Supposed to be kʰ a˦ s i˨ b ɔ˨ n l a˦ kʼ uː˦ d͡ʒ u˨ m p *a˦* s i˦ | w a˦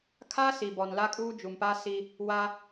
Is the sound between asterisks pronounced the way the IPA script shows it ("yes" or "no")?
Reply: yes